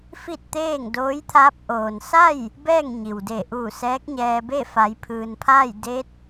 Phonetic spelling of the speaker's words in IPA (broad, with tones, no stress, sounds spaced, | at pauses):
f i˥˨ t̚ t̪ eː˥˨ ŋ d oː˧˥ j t̪ʰ aː˧˥ p̚ ʔ oː˩ n s a˥˨ j | b ɛː˥˨ ŋ ɲ i˩ w d eː˧˩ ʔ uː˧˩ s ɛː˧˥ k̚ ɲ ɛː˧ b e˥˨ f a˩˧ j pʰ ɯː˩ n pʰ aː˥˨ j d e˧˥ t̚